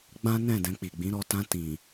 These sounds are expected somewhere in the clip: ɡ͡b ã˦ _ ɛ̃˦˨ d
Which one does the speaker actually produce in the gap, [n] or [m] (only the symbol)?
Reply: n